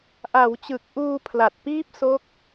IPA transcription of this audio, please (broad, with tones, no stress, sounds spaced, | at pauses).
ʔ a˩˦ w t͡ɕ ɯ˨˩ k̚ ʔ uː˧ pʰ l a˨˩ t̚ p iː˦˥ p̚ s o˦˥ k̚